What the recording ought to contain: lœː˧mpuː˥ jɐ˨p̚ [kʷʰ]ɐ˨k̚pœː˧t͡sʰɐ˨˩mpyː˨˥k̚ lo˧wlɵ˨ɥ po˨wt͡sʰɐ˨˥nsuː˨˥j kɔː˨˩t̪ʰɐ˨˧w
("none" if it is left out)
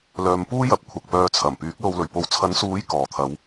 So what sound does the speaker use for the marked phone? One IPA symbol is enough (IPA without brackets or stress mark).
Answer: kʷʰ